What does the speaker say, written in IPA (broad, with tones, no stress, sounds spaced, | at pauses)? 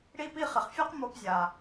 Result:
ɽ i˥ p i˥ χ ɪ˩ χ fʲ a˥ q m o˧ p zʲ a˩